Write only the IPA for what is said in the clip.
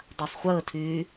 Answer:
dˤ a sˤ χʷ əː tʰ yː

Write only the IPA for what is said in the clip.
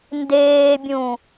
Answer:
n d eː bʲ ũ

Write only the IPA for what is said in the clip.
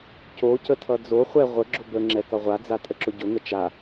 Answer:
c o c ə tʰ ʌ d͡z o χʷ ɛ ʁʷ ə ɡ͡ǁ ʊ b ə ŋ͡ǁ ɛ k ʌ ʁʷ a d͡z a tʼ ə ǁ ʊ ɟ ʊ ŋ ə t͡ʃ a

